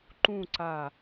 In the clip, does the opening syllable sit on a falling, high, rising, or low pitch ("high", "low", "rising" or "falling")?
falling